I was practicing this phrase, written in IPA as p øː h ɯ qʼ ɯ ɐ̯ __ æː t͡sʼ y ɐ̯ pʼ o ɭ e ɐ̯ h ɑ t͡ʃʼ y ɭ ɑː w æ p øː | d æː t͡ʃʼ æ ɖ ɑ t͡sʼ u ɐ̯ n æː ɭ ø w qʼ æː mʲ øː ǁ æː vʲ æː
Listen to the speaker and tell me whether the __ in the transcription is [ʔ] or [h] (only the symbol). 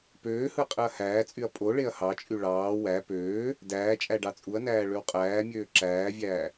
h